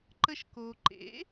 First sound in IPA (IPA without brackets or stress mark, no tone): ǃ